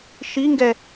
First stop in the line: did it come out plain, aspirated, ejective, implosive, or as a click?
plain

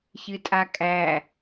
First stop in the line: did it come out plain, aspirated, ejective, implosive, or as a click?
ejective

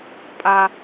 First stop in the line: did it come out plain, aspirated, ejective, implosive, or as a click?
ejective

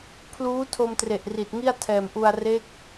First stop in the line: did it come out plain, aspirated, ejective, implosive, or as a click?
aspirated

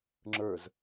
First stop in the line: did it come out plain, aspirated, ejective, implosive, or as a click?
click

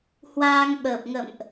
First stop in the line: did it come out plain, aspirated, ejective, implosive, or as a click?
implosive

